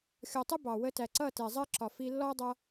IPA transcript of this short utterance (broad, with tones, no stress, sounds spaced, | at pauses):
xʲ ɔ˨ tˤ ʊ˦ b ɑ˨ w ə˧ t æ˨ ǀ ʌ˦˨ t ɛ˨ zˤ ɜ˦ ǁ ɒ˨ f i˧ lː ɔ˦ dˤ ʌ˧